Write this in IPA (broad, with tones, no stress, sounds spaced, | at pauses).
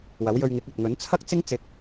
w ɐ˨˥ w j ɵ˧ ɥ ŋ ɪ˨˥ k̚ ɐ˨ t̚ ŋ ɵ˨˥ n t͡sʰ ɐ˥ k̚ t͡s ɪ˥ ŋ t͡s ɪ˧ k̚